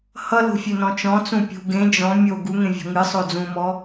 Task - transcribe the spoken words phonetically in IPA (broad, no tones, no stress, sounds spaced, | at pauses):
h ʌ l o̤ fʲ ø n ɔ̃ t͡ʃ ɔ̃ t͡s ũ pʲ ṳ ɡ ẽ d͡ʒ ɔ̃ mʲ o ɡ u ŋ ẽ vʲ ɔ̤ ŋ ɨ sˤ o d͡z ũ m ɔ